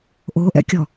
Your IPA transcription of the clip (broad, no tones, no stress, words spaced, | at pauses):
ʔoʔɛ̰kʲɔ